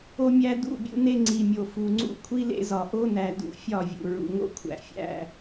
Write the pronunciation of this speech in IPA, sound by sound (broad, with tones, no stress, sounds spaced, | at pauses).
o˦ mʲ æ˦ d ṵ˦˨ bʲ ṵ˦ n e˦ ŋ͡ǀ i˨ mʲ o˨ f u˨ ŋ͡ǀ ṵ˦ kʷʰ i˦ l ḛ˦ z ɒ˨ ʔ o˦ n æ˨ d ṵ˨ fʲ ɒ˦˨ vʲ ṵ˨ ɹ ṵ˨ ŋ o̰˦ kʷʰ æ̰˨ fʲ æ̰˦